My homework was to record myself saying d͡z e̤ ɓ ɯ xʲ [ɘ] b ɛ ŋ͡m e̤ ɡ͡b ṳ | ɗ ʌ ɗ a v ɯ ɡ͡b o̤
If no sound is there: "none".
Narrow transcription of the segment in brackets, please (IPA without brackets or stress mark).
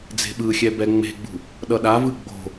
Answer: ɛ